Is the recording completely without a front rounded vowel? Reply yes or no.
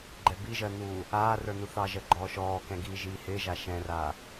yes